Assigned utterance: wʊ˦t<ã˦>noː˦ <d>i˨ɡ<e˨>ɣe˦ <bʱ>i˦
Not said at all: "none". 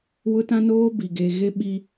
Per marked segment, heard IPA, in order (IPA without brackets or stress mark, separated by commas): ã˦, b, e˨, ɓ